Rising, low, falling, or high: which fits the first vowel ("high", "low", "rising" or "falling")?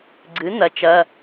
rising